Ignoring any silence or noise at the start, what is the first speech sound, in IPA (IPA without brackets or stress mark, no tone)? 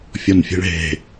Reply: fʲ